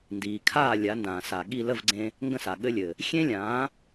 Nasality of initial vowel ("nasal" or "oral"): oral